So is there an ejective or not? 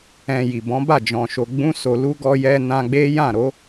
no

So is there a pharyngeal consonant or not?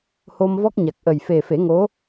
no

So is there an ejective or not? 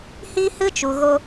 no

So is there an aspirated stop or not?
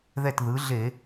no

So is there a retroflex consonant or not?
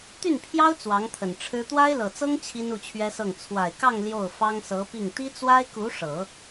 yes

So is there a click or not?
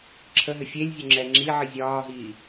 yes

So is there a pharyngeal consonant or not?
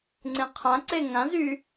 no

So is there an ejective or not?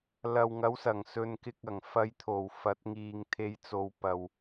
no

